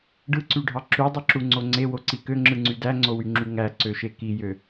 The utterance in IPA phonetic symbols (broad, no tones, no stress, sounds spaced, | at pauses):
ɖ ɯ ǀ y ɖʱ ɑ ǁ y dˤ ɯ ǁ u ŋ͡ǀ o ŋ͡ǀ e w o ǀ i k ø ŋ͡ǁ ɯ ŋ͡ǀ y d æ ŋ͡ǀ o w y ŋ͡ǁ y ŋ æ ǀ ø ʃ e k i j ø